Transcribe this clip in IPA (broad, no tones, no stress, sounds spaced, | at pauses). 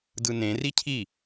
d ɯ n ẽ r i cʰ i